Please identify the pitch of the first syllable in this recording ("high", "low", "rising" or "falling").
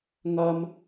high